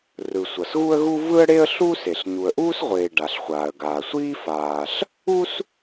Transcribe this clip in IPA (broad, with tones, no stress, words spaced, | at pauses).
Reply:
rɯ˩ sʷʌ˩sɣu˥ə̯ɣu˥ vɯ˥ə̯ɽe˥ə̯ɬuː˥s e˩ɬ ɲu˩ə̯ʔuː˥sʁʷeː˩ ɖa˩ɬχʷaː˩ə̯ɡaː˩sʷiː˥ faː˩ɬ | u˥s